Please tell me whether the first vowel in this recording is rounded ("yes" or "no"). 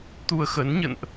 yes